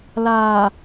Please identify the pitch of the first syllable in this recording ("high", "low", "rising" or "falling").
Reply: low